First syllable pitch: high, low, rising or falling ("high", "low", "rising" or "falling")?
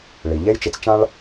low